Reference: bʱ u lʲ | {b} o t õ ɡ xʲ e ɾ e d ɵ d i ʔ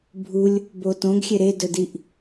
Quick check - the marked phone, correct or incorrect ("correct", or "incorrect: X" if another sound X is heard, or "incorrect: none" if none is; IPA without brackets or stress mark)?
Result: correct